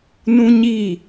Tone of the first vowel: high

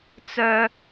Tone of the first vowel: high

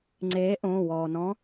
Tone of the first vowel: rising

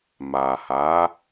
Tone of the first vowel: low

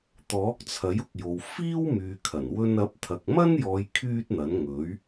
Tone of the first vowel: rising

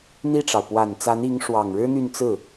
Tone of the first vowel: falling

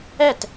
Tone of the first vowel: falling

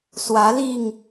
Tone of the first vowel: rising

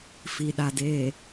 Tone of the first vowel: low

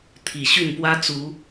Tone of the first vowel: low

